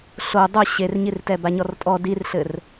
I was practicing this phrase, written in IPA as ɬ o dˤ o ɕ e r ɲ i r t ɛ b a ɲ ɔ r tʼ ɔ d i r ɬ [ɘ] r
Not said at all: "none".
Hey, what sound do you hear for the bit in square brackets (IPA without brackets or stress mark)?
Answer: ɘ